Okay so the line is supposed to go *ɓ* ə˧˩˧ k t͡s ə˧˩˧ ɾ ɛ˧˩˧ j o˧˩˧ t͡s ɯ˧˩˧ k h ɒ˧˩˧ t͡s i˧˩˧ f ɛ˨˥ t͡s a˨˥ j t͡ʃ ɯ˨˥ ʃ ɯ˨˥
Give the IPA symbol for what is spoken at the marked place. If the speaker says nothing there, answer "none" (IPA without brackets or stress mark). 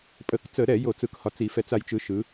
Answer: pʼ